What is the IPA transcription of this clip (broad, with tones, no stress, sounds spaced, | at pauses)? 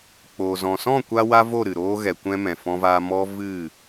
k͡p oː˨ z ɔ̃˨ s ɔ̃˦˨ kʷ a˧ w a˦ v o˦˨ ɾ ɨ˨ ɾ oː˦ ɣ ɛ˨ kʷ ɛ̃˧ m ɛ̃˨ f ɔ̃˧ v a˧ m ɔ˦ v ɨ˦˨